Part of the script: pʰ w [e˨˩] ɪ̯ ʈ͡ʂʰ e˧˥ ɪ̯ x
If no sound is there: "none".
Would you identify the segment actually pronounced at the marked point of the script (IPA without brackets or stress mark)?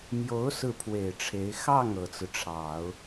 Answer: e˨˩